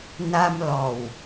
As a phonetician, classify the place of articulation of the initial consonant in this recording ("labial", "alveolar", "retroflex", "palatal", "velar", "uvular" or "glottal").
alveolar